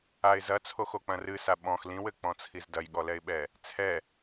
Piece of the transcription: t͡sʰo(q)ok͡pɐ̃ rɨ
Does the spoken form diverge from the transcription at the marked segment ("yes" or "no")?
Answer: yes